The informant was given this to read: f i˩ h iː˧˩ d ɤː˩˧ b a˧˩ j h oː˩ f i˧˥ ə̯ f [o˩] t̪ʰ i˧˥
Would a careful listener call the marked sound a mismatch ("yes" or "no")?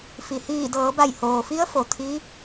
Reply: no